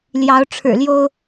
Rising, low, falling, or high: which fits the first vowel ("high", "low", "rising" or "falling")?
rising